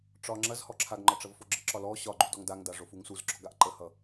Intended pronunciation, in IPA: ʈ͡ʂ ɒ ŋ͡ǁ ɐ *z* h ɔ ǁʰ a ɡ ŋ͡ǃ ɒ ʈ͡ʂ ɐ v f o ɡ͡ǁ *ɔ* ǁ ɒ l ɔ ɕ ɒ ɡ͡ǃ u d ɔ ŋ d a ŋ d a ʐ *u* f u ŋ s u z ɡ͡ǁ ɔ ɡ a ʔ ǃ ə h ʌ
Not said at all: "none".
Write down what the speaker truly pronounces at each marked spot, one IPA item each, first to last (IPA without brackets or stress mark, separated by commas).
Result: z, ə, o